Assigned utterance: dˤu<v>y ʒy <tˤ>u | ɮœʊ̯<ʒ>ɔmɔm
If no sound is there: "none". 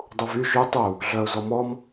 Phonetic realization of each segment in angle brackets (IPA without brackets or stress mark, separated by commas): v, tˤ, z